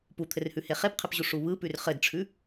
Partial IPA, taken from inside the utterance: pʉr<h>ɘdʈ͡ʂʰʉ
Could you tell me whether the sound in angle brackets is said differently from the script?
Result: yes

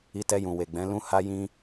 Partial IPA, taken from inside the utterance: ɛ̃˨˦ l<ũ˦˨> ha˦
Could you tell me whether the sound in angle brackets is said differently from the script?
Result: yes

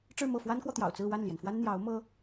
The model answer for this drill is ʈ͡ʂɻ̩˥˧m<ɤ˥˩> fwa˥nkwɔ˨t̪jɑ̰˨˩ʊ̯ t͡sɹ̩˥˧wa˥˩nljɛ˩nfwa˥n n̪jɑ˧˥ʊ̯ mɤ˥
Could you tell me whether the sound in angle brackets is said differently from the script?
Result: no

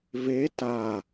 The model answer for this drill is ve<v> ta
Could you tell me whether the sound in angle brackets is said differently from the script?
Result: yes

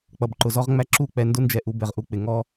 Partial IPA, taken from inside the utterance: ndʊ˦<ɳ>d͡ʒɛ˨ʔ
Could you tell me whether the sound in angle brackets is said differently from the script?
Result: yes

